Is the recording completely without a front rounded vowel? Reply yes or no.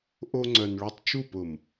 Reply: no